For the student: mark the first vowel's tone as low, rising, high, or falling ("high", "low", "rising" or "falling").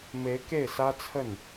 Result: rising